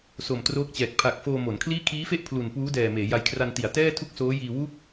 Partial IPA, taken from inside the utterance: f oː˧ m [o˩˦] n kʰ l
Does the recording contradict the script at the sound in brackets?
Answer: no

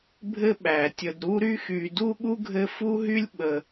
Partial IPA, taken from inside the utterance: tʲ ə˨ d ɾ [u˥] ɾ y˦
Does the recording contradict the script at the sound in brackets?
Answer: yes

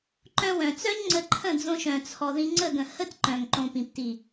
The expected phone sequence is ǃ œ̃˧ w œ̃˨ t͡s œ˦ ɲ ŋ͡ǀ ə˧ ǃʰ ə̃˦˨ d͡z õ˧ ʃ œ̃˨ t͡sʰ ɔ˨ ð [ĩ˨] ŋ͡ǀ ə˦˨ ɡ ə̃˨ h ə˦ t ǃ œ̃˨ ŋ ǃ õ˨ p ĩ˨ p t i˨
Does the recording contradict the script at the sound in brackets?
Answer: yes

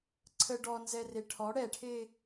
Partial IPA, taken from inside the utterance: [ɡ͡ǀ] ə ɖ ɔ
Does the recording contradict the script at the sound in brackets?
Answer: yes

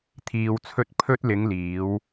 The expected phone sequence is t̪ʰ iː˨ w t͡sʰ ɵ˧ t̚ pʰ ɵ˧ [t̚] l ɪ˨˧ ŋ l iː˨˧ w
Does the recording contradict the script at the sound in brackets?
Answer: no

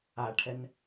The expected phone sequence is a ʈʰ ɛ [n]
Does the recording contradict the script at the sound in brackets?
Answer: no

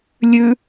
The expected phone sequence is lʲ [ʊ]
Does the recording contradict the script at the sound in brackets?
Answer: yes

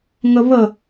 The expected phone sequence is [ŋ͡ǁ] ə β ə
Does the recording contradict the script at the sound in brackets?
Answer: yes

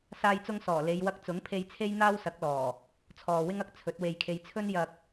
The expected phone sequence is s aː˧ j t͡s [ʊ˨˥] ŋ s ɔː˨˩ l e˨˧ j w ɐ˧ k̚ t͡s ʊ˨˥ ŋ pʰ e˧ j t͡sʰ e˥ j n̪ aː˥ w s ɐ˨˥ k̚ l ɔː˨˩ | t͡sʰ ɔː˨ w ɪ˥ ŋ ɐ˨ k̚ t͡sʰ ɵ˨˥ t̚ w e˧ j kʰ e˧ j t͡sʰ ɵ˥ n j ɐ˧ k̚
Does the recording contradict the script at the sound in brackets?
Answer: yes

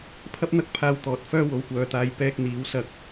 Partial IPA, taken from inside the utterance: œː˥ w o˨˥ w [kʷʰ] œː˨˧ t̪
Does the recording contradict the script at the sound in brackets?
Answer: yes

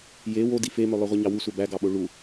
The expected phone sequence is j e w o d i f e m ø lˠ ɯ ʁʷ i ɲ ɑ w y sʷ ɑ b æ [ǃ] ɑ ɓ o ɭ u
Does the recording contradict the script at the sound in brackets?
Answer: yes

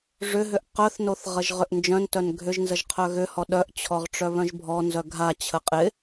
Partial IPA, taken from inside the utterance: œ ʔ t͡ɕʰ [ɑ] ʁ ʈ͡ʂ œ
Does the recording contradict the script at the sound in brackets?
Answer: yes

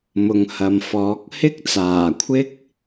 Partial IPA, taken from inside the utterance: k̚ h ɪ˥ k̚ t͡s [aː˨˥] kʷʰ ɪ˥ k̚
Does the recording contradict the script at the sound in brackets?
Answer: yes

